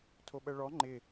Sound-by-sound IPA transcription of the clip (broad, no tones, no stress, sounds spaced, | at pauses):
tʰ o ɓ ɜ ɭ ɔ ŋ͡ǃ ɪ